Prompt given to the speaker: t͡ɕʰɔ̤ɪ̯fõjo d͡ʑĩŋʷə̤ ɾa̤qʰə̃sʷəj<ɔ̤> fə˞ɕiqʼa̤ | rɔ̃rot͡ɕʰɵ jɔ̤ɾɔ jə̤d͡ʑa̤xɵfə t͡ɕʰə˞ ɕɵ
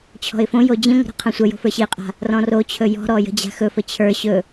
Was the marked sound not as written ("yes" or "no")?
yes